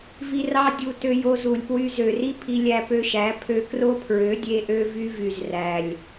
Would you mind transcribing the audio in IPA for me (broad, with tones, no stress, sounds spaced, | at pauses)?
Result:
v i˧ r ɑ˦ dʲ u˧ t ø˧ j o˧ z u˨ lʲ p w y˧ z ø˨ r i˦ pʰ i˧ lʲ æ˧ p ø˧ ʃ æ˨˦ pʰ ø˧ k r o˦ pʰ ɹ ø˨˦ dʲ e˦ ʔ ø˦ v y˦ v y˨ z r æ˨ lʲ